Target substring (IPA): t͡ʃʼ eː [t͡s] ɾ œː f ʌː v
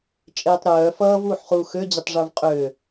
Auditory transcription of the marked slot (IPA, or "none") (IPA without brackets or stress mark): tˤ